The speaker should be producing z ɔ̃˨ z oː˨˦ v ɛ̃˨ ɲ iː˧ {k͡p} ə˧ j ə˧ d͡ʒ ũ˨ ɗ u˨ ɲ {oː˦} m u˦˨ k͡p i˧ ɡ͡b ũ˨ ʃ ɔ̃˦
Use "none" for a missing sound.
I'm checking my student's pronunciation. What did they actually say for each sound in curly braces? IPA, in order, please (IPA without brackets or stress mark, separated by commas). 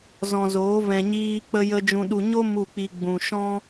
k͡p, o˦